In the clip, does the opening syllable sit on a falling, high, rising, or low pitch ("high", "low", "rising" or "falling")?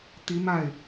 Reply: rising